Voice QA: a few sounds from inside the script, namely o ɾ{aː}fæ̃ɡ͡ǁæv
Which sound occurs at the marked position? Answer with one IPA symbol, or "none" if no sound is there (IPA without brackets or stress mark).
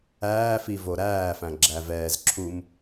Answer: æː